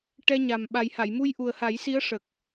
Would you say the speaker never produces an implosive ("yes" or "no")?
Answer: no